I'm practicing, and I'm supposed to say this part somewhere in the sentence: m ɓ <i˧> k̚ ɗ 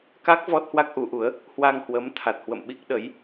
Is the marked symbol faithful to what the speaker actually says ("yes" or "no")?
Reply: no